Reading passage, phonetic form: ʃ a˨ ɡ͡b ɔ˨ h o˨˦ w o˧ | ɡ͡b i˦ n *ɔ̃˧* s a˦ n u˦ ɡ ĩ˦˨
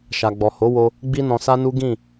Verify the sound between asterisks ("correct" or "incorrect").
correct